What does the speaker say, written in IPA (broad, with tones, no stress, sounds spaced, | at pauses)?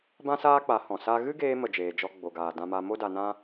b ã˦ s aː˦ k͡p a˨˦ h ɔ̃˨ s a˦ ɣ ɨ˦ ɡ eː˧ m ə˨ d͡ʒ eː˨ d͡ʒ ɔ˧ ɡ͡b o˨ ɡ aː˨ d ã˧ m a˧ m o˦ d a˧ n ã˦